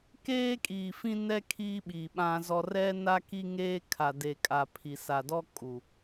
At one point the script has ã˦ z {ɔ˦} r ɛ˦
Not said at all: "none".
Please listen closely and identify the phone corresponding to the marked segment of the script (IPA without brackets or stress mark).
ɔ˦